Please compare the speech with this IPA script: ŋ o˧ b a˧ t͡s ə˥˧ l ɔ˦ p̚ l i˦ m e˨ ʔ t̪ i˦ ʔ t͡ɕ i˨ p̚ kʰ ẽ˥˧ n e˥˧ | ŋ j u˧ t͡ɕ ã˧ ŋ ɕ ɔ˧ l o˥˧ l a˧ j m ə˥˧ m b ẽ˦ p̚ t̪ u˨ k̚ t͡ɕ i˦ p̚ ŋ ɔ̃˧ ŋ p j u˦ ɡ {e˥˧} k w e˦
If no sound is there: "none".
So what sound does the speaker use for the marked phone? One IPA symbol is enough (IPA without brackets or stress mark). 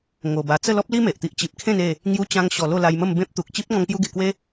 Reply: e˧